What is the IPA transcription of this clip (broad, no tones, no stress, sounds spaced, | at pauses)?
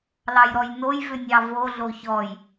l ɑ j ɾ ɔ j n o j v ʏ nʲ ɑ v o ɮ o ç ɔ j